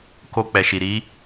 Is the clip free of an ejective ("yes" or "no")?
yes